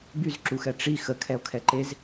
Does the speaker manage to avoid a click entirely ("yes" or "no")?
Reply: no